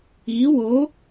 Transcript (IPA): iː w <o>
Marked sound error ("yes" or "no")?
no